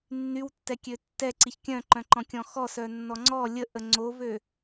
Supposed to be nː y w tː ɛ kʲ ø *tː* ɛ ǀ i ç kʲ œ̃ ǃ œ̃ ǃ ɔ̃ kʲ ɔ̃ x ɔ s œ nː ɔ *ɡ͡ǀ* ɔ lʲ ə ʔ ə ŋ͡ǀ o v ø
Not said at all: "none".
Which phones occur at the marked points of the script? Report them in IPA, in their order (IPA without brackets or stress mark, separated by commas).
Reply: tː, ŋ͡ǀ